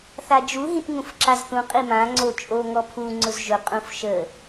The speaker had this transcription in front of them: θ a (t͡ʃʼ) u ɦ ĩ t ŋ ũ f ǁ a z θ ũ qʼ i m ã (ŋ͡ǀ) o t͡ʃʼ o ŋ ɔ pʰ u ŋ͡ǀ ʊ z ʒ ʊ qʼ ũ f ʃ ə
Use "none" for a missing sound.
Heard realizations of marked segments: d͡ʒ, ŋ͡ǀ

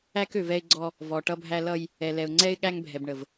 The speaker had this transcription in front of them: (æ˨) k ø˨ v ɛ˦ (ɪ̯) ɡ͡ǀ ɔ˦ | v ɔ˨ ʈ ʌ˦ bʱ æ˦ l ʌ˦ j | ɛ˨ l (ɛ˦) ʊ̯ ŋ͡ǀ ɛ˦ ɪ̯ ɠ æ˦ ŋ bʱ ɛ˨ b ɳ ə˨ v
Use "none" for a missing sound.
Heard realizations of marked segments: æ˦, ɪ̯, ɛ˨

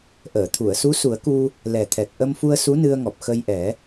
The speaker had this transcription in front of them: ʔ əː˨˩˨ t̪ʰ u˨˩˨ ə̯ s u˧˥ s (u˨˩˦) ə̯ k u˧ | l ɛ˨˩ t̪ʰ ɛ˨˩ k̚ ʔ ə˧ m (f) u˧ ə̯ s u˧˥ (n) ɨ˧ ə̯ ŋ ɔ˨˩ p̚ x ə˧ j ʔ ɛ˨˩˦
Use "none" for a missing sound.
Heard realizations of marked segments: u˨˩˦, f, n

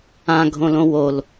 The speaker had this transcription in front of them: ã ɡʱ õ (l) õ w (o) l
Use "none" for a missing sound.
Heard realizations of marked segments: l, o

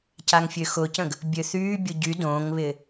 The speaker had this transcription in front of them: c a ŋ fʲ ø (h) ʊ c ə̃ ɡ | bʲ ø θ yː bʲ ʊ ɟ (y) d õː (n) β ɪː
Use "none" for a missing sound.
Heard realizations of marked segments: x, y, ŋ

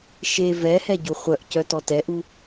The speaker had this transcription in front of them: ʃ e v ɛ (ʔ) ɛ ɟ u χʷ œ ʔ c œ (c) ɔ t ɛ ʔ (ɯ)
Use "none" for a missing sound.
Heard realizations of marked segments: h, t, u

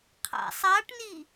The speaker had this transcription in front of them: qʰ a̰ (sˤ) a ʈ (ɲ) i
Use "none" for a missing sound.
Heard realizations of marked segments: sˤ, n

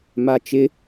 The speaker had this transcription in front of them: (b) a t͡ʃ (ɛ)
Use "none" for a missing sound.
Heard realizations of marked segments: m, ɪ

